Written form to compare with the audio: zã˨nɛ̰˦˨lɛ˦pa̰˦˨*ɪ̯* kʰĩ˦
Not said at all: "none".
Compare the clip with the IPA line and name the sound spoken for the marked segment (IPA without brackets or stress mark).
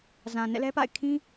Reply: ɪ̯